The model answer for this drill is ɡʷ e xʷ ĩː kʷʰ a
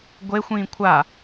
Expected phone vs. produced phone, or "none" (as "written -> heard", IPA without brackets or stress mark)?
none